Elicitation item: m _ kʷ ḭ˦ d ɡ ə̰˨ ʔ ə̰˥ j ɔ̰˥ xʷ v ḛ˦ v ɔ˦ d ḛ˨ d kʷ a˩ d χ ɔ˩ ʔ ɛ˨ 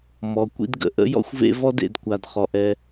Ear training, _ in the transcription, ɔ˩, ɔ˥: ɔ˩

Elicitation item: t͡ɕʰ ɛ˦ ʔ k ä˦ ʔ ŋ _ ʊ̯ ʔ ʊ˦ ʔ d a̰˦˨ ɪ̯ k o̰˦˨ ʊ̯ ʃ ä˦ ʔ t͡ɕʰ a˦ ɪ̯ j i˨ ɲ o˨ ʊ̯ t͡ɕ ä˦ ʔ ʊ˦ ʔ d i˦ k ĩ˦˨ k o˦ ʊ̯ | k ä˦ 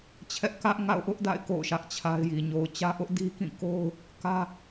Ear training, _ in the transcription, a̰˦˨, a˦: a̰˦˨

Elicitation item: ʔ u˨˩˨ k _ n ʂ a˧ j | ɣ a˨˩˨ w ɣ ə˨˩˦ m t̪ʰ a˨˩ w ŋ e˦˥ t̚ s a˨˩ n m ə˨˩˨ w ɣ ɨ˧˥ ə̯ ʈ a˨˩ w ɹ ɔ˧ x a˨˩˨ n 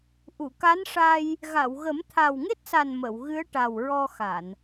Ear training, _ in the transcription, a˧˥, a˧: a˧˥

